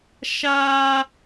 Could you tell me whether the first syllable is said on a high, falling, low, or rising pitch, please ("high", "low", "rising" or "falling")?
high